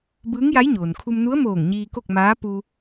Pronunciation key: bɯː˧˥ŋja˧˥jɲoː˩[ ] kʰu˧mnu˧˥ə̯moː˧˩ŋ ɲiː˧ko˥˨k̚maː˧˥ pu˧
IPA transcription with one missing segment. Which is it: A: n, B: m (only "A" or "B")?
A